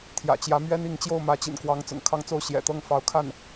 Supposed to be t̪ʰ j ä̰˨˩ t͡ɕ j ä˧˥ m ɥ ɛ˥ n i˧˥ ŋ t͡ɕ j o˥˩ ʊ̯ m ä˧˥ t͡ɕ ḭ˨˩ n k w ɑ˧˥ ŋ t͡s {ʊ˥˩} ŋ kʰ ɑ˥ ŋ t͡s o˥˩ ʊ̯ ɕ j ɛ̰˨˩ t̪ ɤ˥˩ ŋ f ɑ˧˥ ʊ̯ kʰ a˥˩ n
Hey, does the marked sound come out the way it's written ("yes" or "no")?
no